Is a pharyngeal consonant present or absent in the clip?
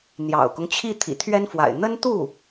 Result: absent